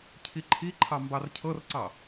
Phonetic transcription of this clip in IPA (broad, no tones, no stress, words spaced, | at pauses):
cʰiǃʰiǃʰɑ mbɑrcʰɤrǀɑ